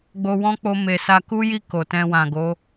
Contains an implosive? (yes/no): no